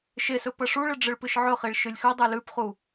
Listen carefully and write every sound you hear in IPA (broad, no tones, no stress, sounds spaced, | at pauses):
ʃ e s ɵ p ɐ ʂ u ɭ ɨ ɖ͡ʐ ɨ ɭ p ɨ ʃ ʕ ɵ χ i ɭ ʃ ɨ lʲ x ʉ dˤ ʉ l ʉ p χ u